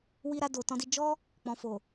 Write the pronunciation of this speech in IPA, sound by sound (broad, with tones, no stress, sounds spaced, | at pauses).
w i˧ ɾ a˧ d o˨ t ɔ̃˧ d i˧ d͡ʒ ɔ˦ | k͡p ɔ̃˨ f o˨